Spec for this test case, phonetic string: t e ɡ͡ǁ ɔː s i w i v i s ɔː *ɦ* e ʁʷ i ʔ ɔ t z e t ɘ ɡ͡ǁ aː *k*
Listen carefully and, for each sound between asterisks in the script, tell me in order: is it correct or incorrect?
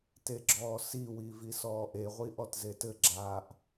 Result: incorrect: ʔ, incorrect: ʔ

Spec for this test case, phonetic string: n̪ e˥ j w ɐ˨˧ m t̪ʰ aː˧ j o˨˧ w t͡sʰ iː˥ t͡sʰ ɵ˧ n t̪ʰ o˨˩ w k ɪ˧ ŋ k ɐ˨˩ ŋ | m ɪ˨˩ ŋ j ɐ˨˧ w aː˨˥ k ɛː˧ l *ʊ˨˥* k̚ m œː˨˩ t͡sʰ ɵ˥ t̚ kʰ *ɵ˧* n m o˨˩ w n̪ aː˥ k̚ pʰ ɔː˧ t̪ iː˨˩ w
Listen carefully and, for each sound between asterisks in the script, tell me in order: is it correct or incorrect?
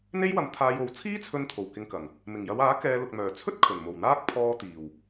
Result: incorrect: ʊ˨, incorrect: ɵ˨˩

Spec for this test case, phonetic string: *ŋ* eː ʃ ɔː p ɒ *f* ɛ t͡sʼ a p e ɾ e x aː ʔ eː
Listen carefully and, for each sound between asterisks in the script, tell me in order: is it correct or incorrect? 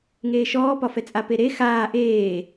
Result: correct, correct

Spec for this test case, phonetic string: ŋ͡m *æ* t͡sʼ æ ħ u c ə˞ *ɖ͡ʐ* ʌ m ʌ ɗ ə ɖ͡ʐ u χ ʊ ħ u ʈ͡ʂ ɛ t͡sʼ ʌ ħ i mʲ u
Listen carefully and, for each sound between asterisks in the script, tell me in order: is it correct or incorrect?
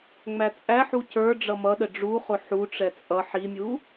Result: correct, correct

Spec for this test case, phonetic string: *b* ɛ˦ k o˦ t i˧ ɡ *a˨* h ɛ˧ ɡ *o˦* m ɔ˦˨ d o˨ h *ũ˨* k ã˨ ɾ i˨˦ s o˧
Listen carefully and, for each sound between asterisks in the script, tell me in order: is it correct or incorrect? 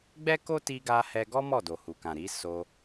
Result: incorrect: ɡ͡b, incorrect: a˧, incorrect: ɔ˦, incorrect: u˨

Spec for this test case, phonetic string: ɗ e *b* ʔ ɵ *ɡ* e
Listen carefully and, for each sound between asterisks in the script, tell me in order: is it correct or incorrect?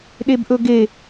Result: correct, correct

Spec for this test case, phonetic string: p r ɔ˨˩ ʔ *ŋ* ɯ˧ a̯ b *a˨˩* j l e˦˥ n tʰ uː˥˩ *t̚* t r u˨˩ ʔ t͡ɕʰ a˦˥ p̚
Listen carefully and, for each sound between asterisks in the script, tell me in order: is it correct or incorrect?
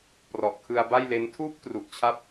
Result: incorrect: kʰ, incorrect: a˥˩, incorrect: p̚

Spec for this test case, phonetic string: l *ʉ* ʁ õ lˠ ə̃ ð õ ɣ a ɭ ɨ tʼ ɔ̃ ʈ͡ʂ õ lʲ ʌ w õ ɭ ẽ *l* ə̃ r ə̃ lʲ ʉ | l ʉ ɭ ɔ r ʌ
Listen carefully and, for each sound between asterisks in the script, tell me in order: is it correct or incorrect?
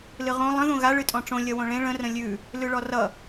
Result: incorrect: ɨ, incorrect: ɭ

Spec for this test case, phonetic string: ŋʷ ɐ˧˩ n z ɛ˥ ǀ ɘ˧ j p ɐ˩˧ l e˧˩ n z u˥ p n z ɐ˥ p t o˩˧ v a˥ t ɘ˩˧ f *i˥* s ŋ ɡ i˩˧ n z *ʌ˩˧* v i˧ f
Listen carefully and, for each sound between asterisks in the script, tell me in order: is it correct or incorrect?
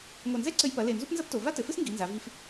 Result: incorrect: ɨ˥, incorrect: a˩˧

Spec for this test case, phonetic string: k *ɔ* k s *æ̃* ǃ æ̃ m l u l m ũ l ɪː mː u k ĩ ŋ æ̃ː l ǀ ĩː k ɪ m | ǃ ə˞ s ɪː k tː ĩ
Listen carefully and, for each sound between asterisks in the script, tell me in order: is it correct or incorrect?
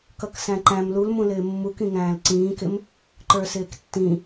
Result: incorrect: ʌ, correct

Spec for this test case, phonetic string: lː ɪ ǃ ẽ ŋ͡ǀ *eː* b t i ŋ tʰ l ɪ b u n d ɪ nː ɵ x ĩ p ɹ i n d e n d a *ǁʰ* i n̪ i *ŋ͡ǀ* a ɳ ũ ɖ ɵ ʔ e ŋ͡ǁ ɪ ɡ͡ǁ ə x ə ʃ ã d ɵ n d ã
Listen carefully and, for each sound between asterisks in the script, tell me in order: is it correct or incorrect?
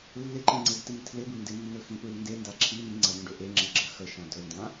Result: incorrect: e, correct, correct

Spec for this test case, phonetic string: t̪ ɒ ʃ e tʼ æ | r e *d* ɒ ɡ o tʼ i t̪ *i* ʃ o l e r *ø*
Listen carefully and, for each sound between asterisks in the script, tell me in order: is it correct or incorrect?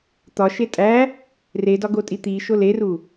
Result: correct, correct, incorrect: u

